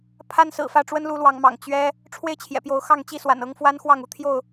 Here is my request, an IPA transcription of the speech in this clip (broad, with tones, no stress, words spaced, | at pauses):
pʰa˦nsɹ̩˨˩fä˥˨ ʈ͡ʂwə˦nlu˨˦ lwɑ˨˦ŋmɑ̰˨˩ŋ t͡ɕɥɛ˦ | ʈ͡ʂʰwe˥˨ɪ̯t͡ɕʰjɛ̰˨˩pjo˨˦ʊ̯xɑ˥˨ŋ t͡ɕi˥˨swa̰˨˩n ɤ˦ŋ fwa˦nxwɑ˥˨ŋu˦t̪ʰjo˥˨ʊ̯